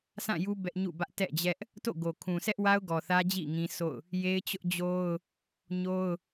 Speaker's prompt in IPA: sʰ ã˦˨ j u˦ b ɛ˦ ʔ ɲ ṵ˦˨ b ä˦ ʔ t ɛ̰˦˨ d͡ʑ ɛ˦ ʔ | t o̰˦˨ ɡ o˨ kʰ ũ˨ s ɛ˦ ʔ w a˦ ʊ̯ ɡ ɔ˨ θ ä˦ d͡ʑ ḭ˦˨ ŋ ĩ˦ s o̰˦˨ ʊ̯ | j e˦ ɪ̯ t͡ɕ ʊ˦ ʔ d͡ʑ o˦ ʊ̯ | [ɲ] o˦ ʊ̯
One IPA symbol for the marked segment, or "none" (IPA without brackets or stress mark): ɲ